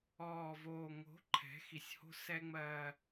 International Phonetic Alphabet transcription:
ɔː˨ v oː˨ ŋ o̤˨˦ ǃʰ ɛ̤˨˦ x i˨ sʲ h o̤˦ s ɛ˦ ŋ͡m ɜː˦

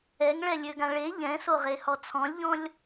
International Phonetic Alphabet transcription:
ɛ ŋ ɭ ɛ lʲ ø ɡ ã ɭ e ʎ ɛ̃ s o ʁ e h ɔ t͡sʰ ɔ̃ lʲ ʎ ɔ̃ lʲ

